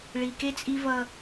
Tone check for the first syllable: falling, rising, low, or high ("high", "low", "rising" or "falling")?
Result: low